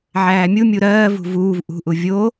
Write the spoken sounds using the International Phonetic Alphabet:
ʕæːmʲumʲu ɾɜːvṳ vuːv ʔṳʔu vʲo

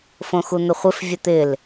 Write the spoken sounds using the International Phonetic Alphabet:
fõxun̪əχʷɪf vʲət̪ɪl

